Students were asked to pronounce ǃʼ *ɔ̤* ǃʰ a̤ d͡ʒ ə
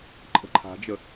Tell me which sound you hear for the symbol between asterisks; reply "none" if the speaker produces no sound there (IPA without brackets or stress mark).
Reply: ə̤